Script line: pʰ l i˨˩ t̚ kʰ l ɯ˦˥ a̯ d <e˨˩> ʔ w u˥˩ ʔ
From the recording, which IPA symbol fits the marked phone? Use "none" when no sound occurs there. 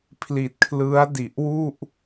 i˨˩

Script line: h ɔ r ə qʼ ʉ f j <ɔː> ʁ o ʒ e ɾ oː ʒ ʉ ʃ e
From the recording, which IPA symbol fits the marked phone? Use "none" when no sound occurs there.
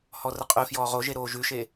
ɔː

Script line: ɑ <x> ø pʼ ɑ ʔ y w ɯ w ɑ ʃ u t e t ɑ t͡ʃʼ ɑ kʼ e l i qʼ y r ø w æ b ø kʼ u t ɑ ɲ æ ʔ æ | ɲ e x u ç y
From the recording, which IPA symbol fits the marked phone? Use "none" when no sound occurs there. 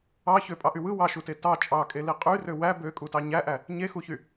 ç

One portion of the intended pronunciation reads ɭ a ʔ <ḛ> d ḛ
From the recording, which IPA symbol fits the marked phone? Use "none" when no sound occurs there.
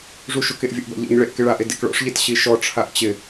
e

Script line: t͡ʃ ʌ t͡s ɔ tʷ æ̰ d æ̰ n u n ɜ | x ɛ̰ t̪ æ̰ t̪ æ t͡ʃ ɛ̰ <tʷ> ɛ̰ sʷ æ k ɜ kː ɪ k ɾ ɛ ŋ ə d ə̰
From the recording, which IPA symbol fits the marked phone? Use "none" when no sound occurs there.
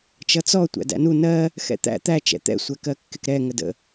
t̪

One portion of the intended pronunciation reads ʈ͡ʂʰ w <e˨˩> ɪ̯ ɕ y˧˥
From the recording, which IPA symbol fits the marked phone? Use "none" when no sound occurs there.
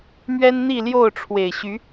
e˨˩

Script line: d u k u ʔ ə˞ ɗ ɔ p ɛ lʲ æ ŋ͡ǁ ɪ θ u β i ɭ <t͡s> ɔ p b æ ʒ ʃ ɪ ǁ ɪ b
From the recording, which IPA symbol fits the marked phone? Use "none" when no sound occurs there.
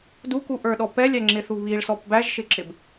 s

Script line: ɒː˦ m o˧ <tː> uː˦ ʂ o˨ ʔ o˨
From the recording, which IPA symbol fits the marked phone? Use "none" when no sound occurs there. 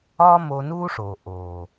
n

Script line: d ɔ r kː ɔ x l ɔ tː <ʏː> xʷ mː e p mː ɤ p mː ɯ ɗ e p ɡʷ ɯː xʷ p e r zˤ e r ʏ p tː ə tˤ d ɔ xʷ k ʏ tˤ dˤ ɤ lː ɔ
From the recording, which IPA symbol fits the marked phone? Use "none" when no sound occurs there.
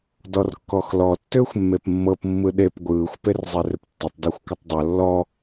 ʏː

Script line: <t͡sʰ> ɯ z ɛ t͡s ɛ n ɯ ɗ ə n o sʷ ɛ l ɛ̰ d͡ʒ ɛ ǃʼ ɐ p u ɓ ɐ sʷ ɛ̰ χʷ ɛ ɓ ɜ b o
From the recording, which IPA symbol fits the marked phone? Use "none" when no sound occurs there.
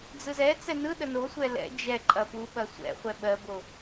d͡z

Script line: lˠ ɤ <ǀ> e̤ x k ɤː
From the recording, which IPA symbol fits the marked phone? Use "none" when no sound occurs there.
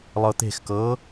t̪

